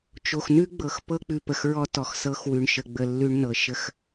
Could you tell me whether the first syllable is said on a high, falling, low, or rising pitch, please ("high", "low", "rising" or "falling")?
low